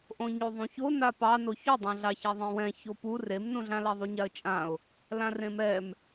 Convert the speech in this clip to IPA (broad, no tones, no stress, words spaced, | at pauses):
ʔõɲoðˤũço napɑ noçodˤã ɮɑçaðˤẽwɛ̃ çopu remnũɮãla ðˤuɲaə̯t͡ʃʼãʊ̯ | lãrẽmɛm